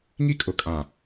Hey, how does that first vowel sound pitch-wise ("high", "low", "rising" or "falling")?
high